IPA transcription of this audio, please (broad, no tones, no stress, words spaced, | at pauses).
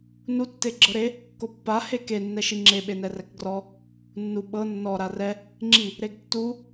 nu tːeɡ͡ǁɤɾe | kopːa heke nːɛʃiŋ͡ǁe ɓenɛrɛkɡrɔ | nːu ɓɤ nːɔ ɾarɛ | ŋ͡ǁi | ɾeɡtːu